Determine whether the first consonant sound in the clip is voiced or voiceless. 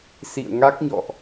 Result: voiceless